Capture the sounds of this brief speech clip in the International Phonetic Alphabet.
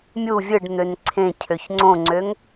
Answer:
mʲ u vʲ ɯ ɖ n̪ ø n ǀʰ ẽ cʰ ø ç ŋ͡ǀ õ ŋ͡ǀ ø ŋ

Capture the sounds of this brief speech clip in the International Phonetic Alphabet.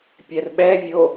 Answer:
pʲ ɛ r ɓ ɛ vʲ o

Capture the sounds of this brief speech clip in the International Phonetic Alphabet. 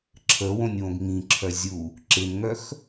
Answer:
ǁʰ ə w õ nʲ w õ ɡ ŋ ĩ ǁʰ œ zʲ u | ǁ ɪ n ŋ œ x

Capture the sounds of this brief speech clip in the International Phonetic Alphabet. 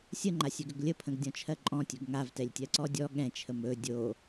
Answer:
sʲ ə ŋ͡ǃ a sʲ ɵ ɡ ɵ ɡ lʲ ə pʰ ə̃ ɡ dʲ ɔ̃ t͡ʃʰ ɜ ǃʼ ɔ̃ tʲ ɵ ɡ ŋ a v t ɛ lʲ tʲ ɜ ǀ ɔ dʲ ɔ ɠ ɛ̃ t͡ʃʰ ə m ɵ dʲ o

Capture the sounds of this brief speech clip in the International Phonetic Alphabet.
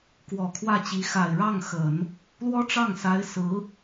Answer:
k w ɔ˨˩ kʰ w ä˥˩ t͡ɕ i˧˥ x a˨˩ ɪ̯ ɻ ɑ˥˩ ŋ x ə˨˩˦ n | l w ɔ˥ ʈ͡ʂ ɑ˥˩ ŋ s a˧˥ ɪ̯ s ɹ̩˧˥

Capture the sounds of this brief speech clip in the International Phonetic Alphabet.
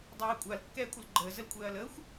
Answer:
dˤ ɛː ɐ̯ kʷʼ a l kː ɛː kʷʼ ə l ɡ͡ǃ əː z ə l kʷʼ ɛː ɐ̯ l əː xʷ

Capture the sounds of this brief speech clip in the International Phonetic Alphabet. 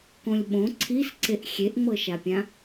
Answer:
k õ lʲ ɓ õ ǀʰ i s ǀ e ʔ xʲ e ʔ ŋ͡m ɤ ʃ a pʲ ã

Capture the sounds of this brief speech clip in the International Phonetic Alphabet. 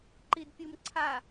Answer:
ǃ i d pʲ u m ǀʰ a

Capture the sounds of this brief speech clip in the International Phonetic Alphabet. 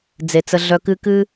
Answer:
d͡z e˨ t͡s ə˧ ɮ œ˧ k ɨ˦ k ɨ˧

